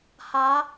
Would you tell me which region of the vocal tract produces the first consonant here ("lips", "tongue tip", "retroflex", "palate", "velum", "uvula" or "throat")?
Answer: throat